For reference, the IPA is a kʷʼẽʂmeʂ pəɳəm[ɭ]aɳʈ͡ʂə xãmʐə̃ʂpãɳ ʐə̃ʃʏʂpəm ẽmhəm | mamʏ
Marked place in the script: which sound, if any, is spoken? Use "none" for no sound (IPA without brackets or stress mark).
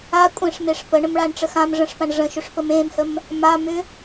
ɭ